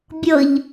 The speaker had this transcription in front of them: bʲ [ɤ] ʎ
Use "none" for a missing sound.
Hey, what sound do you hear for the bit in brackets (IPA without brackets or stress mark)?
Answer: ɤ